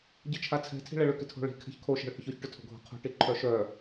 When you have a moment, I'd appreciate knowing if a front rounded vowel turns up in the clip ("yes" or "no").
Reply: yes